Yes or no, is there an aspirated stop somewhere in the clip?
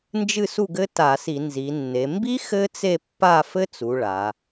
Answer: no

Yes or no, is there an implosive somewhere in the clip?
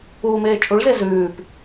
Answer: no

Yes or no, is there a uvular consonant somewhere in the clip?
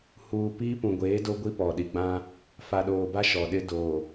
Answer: no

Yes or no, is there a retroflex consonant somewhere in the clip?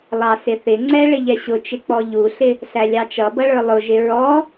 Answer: yes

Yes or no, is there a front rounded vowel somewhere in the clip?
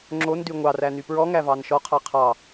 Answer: yes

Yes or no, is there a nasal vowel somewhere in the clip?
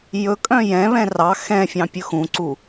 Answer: yes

